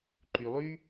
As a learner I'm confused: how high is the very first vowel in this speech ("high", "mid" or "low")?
high